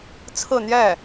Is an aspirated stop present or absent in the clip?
present